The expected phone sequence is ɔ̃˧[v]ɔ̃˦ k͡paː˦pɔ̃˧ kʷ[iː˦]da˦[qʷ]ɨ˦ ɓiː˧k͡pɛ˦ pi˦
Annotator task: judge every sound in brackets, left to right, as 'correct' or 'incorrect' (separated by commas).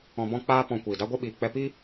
incorrect, incorrect, incorrect